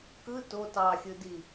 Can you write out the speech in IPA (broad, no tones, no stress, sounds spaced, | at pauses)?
k ɯ t o t ɑ xʲ ɯ d i